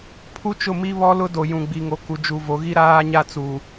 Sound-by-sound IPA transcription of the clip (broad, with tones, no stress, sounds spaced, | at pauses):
pʰ u˦ t͡ʃ ʊ˦˨ m i˦ β ɔ˦ l ʊ˦ d o˨ j ũ˨ ɡ͡b i˨ ŋ o˨ k u˨ d͡ʒ u˨ v o˨˦ ɣ i˦ ɾ aː˦ ɲ a˦ t͡s u˨